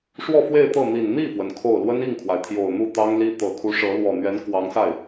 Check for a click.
absent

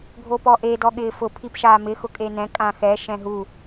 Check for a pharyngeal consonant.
absent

